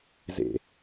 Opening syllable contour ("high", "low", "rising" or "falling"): low